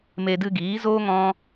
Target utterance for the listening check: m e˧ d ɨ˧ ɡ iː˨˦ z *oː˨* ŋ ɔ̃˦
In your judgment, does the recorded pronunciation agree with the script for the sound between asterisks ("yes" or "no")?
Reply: no